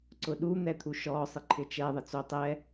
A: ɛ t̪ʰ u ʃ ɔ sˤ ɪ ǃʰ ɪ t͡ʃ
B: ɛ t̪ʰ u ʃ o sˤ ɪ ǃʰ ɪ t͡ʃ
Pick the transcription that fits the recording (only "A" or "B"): A